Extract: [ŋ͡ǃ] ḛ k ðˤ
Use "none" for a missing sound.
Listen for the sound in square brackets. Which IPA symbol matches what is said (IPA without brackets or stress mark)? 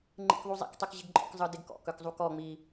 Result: ŋ͡ǃ